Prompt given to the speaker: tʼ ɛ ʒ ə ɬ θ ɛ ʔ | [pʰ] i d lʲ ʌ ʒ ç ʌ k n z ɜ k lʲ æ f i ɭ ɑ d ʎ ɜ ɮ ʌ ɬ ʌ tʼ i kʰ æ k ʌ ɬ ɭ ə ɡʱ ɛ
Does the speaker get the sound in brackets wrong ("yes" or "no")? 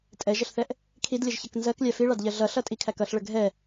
yes